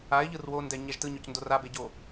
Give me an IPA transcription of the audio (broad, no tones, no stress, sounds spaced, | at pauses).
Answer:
a ɪ̯ ʎ ɯ r w o n d ɛ ɲ ɛ ʒ t ɯ ɲ o c n d o r a b e ɟ o